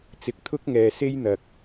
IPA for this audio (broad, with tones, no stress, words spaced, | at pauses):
t͡sɪ˨˥k̚t̪ʰʊ˥k̚ŋɛː˨se˥j n̪ɐ˨k̚